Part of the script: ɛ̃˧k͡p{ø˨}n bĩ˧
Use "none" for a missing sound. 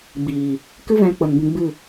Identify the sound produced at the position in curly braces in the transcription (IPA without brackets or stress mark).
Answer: ə˨